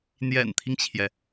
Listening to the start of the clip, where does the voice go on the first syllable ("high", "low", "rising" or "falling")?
low